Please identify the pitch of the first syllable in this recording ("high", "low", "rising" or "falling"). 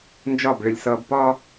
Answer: falling